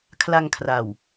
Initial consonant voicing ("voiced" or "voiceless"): voiceless